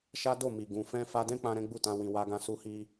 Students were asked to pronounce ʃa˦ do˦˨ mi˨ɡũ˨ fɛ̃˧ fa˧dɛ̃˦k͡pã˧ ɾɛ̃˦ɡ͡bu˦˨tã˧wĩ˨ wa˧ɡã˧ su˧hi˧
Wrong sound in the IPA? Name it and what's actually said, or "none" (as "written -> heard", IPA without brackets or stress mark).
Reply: none